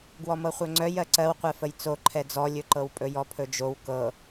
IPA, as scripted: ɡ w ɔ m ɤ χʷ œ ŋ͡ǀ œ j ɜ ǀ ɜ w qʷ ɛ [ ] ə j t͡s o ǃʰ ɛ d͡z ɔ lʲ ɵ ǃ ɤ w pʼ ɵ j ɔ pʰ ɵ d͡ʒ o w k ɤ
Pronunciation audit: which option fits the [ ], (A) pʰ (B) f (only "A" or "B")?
B